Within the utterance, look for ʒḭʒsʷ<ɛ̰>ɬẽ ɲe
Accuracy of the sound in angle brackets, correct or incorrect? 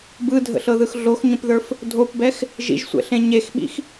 correct